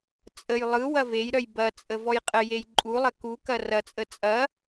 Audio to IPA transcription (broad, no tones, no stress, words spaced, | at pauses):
t͡sʼəj lˠɯ wɐvejɾœj bɐt͡sʼə vɔjqʼəjej ǃʼulˠɐ ku kɐrɐt͡sʼə t͡sʼɐ